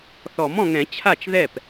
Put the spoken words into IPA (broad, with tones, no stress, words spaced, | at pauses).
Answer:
θɔ˨˩˦mɔ̃˨ŋɛ̃˨˩˦ t͡ɕʰa˥˩t͡ʃðɛ˥˩p